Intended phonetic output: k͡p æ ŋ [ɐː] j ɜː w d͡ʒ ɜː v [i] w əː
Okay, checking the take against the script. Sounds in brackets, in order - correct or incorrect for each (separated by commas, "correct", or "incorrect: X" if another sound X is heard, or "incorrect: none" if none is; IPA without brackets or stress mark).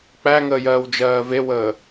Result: incorrect: əː, incorrect: e